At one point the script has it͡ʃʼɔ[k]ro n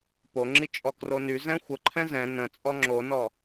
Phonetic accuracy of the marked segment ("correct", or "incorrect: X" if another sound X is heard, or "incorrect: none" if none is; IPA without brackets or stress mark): correct